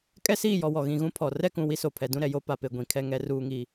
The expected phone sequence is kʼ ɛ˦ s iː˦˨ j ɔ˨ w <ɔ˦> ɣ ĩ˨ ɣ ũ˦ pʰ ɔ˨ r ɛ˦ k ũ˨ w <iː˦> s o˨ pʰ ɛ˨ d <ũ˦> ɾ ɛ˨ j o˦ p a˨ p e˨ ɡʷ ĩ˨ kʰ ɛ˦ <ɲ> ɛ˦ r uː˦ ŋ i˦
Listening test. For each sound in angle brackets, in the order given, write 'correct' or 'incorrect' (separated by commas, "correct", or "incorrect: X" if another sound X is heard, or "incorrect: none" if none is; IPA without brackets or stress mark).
incorrect: ɔ˨, incorrect: i˦, correct, incorrect: ŋ